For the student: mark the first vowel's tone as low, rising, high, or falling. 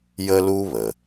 high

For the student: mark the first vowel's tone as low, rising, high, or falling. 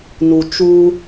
low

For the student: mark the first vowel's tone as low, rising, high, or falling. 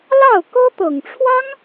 falling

